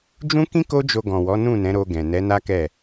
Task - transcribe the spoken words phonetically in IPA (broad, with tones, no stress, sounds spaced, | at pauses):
d͡ʒ ũ˦ k ĩ˦ k o˦ d͡ʒ o˧ ɡ ɔ̃˨ w ɔ˨˦ n ũ˦˨ n ɛ̃˨˦ ɾ o˧ ɡ ɛ̃˨ n ɛ˨˦ n a˦ k ɛ˦˨